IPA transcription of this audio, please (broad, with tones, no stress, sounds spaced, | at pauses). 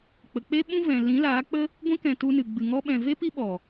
k͡p ə˨ k͡p e˦ ɓ ũ˦ v ɛ̃˨ l ĩ˨˦ l aː˨˦ k͡p ə˦ | ɡʷ ĩ˧ k ɛ̃˨ t u˧ n ɨ˨ ɡ͡b ɨ˨ ŋ ɔ˧ ɓ ɛ̃˨ v e˦ p i˦ ɓ ɔ˨